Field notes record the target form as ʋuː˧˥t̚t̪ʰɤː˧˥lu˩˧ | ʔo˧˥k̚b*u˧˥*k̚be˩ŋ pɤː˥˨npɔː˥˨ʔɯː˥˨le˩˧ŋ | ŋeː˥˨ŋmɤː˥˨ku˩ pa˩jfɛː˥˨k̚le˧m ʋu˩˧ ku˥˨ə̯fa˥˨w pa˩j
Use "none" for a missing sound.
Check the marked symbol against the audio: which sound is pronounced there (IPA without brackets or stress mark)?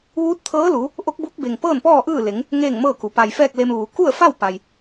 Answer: u˧˥